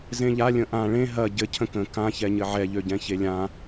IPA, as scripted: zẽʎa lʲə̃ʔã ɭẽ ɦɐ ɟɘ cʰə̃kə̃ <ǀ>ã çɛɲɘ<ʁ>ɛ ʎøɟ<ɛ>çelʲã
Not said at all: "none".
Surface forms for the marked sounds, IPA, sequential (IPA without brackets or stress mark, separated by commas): k, ʕ, ɛ̃